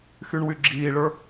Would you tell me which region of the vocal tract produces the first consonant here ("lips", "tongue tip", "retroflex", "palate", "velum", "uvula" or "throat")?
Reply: velum